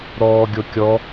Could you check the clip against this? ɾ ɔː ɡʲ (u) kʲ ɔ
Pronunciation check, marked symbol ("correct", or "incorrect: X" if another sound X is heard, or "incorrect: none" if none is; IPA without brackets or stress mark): incorrect: o